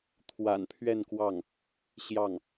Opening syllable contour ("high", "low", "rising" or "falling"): low